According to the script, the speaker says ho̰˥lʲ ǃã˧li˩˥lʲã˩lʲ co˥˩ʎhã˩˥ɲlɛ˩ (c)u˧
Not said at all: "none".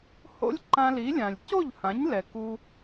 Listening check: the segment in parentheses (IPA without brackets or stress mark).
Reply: k